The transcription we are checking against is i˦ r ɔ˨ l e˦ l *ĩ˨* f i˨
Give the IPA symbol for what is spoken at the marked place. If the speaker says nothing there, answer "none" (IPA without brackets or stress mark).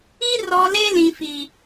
ĩ˨